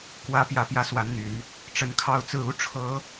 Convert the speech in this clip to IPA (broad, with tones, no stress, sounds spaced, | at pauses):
k w ä˨˦ p j ä˨˦ p j ä˨˦ s w a˨˦ n n̪ y˨˦ n | ʈ͡ʂ ə˨˦ n kʰ ɑ˥˨ ʊ̯ t͡s ɹ̩˥˨ u˦ ʈ͡ʂʰ ɤ˨˦